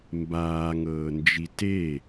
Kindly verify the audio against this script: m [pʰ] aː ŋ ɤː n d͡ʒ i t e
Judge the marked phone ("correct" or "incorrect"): incorrect